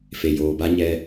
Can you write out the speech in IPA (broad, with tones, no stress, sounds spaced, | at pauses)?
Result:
f e˨ j oː˨ b a˦ ɲ ɛ˦